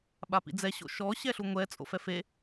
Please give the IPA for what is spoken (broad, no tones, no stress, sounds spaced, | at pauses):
ɓ a p ḭ d͡z ɛ ɕ o̰ ʃ ɔ ɕ ɛ ɬ u ŋʷ ɛ t͡sʼ o̰ f ɛ f e